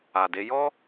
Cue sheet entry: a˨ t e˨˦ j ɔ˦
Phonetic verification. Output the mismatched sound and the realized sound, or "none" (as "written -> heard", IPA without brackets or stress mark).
t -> d